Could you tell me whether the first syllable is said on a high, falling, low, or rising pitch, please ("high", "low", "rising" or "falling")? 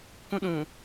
high